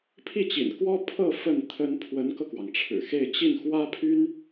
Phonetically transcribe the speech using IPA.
pʰi˥˩t͡ɕḭ˨˩nkwɔ˥ pʰɤ˥˧ fə˥˩n t̪ʰə˥n pʰwə˧˥nkɤ˧kwɑ˩ŋ ʈ͡ʂʰɻ̩˨˩xe˥˧ɪ̯ t͡ɕi˥˩nxwä˥ pʰy˥n

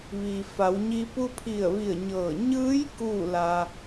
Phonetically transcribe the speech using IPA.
ʋiː˩fa˩˧wɲi˧ pu˧pʰi˧˩ə̯ʋi˧˩ə̯ ɲɤː˧˩ ɲɯː˧˥j kuː˥˨la˧

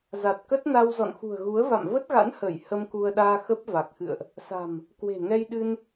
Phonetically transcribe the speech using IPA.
za˨˩t̚kə˦˥t̚na˧w zɔ̰˧˨nxṳ˨˩ə̯ɣu˨˦ə̯va̰˧˨m və˦˥t̚ɣa̰˧˥nhəː˧˩j hə˧mku˧ə̯ɗaː˧ xə˦˥p̚va˨˩k̚xɨ̰˧˨ə̯ʔ | sa̤˨˩m | kwe̤˨˩ŋɛ˧j ɗɨ˧n

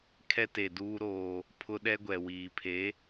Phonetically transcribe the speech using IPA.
kʰɛ˦te˨duː˦ ɾoː˦ | pʰʊ˦ ɗɛ˦ɡʷɛ˨ wiː˨pʰe˨˦

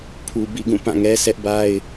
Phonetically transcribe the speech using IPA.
pʰu˨ bḭ˦˨ɡũ˦˨ pã˦˨ŋɛ˦ sʰɛ˦ʔba˦ɪ̯

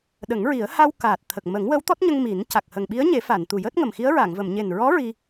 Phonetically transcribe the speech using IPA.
ɗə˨˩˦ŋɹi˨˩˦ə̯ ha˧w kaː˨˩t̚ t̪ʰə˨˩k̚ mə˨˩˦ŋwəː˧˥wt̪ɔ˦˥t̚ɲə˧ŋ mi˨˩˦n ca˨˩k̚hə˨˩ŋ ɓi˧˥ə̯ɲe˨˩˦ fa˨˩˨n t̪u˨˩jəː˦˥t̚ŋə˨˩m xi˧˥ə̯ɹa˨˩˨ŋvə˨˩˨m ɲe˨˩nɹɔ˧˥ ɹi˧

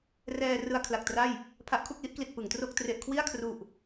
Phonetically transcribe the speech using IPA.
rɛː˧ rɯ˧a̯kʰla˨˩k̚tra˥˩j | pʰa˦˥ʔkʰu˥˩k̚li˦˥ʔkli˨˩t̚ pɯ˩˦ŋtro˥˩k̚ tre˨˩ʔkʰwi˥˩a̯kʰru˨˩ʔ

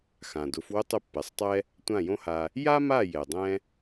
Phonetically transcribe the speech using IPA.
xã˩dʊ˩˥f wʊ˥tˤʊ˥˩pːɛ˩sˤtˤɛ˥ | tʷã˥˩jõ˥ha˧ | ja˥ma˥˩jɛ˩ dˤɛ̃˥

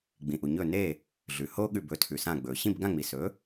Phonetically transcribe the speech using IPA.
ɡ͡bĩ˩ʔu˩ɲɵ˧˩ ne˧˩ | ɮʉ˩ho˦ ɠʉ˧˩bɵ˩˥ tʰʉ˩sã˧˩ɡ͡bɵ˩ ɕĩ˥˨bɡã˥˨ŋ͡mi˩sɵ˩˥

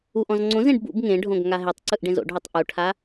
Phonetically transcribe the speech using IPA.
uʔ ɔ̃zŋ͡ǀõzẽɖ bṵb ŋẽɖʱõɡ ŋaɦetˤǀɯʔ ɖẽzo̰ɖɦutˤ ʔuʈʰa

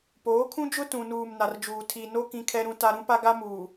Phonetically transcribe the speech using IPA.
poː˨˦kʰũ˦d͡ʒʊ˦ tũ˨nuː˨m na˨rd͡ʒuː˨ tʰi˨no˦ kĩ˦kʰɛ˦ɾũ˦ta˦ ɾũ˦pa˦ɡa˦muː˨

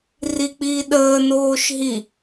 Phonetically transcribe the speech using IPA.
rik͡piːɗəːnoːʃ ɦi

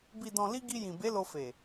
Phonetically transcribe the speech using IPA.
bi˨dɔ̃˨li˧ ɡi˧jĩ˨be˨˦ lo˧fe˨

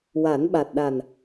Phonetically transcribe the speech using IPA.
wa˨˩˦nɓa˨˩t̚ɗa˨˩n

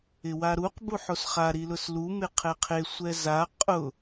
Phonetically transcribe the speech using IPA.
ɪwaɾuq buħosχa ɾilʊslu mɪqʰɛqʰe sʷɛza qʼʊ

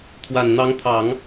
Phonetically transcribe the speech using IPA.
t̪ʰwa˨˩nn̪ɑ˧˥ŋt̪ʰɑ˨˩˦ŋ

